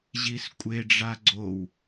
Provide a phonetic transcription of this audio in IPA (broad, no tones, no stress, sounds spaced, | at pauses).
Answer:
ʑ i s kʷʼ e ɖ͡ʐ a ɡ͡ǀ o w